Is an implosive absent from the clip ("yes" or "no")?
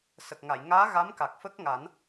yes